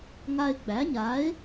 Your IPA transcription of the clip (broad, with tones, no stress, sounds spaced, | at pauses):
ŋ a˧ ɪ̯ ɡ͡b æ˨˥ ɲ a˨˥ ɪ̯